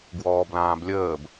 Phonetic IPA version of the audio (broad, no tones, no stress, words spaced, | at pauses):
ɡwɔːblãːblʲəːb